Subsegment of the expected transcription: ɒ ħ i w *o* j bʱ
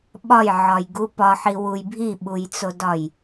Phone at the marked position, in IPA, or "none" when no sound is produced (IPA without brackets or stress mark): u